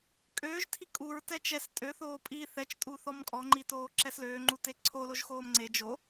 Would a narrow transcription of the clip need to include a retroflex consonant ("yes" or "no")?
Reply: no